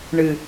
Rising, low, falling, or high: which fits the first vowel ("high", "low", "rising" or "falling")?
low